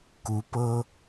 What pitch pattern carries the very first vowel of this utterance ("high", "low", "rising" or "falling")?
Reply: rising